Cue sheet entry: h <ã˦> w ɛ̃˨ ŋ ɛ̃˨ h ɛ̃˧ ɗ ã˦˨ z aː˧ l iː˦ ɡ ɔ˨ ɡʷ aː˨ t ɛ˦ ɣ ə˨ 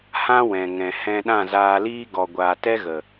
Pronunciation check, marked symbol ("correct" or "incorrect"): correct